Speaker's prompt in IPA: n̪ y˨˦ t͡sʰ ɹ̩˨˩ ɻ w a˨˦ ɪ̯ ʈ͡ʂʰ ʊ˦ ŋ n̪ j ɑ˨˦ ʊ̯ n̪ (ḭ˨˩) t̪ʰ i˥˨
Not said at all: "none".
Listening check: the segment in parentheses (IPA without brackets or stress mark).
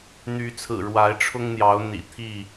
ḭ˨˩